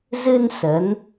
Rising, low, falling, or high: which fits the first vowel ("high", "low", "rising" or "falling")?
high